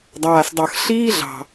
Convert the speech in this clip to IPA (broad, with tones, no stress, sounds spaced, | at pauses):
dˤ aː˩ s dˤ ʌ˩ x ɬ iː˥ ɮ ɑ̤˩